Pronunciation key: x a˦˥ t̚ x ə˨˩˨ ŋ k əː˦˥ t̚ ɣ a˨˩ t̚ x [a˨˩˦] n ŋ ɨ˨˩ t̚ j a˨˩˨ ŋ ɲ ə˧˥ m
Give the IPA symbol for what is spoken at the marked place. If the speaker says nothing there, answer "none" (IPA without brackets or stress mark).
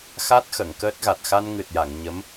a˧